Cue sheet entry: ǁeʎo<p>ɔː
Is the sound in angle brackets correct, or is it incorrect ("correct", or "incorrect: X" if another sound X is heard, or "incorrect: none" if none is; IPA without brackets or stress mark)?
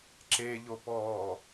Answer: correct